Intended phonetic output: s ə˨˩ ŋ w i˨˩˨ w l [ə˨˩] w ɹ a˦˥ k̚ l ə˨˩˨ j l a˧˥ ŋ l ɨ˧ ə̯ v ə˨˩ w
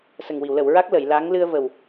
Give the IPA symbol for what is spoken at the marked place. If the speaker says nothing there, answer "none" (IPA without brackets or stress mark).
ə˨˩˨